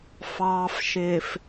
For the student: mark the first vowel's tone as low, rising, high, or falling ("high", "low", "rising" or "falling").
low